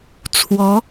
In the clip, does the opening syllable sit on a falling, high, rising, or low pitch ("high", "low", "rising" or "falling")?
rising